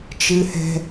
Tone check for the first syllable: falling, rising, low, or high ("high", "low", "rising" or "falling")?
high